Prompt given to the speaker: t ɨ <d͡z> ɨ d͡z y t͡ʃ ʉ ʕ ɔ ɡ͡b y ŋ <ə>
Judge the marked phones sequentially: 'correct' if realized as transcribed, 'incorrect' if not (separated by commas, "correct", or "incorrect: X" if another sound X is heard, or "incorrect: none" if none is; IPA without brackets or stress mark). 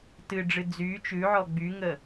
incorrect: ɖ͡ʐ, correct